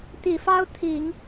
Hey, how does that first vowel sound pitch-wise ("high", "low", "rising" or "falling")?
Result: low